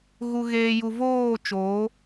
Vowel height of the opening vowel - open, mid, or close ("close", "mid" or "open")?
close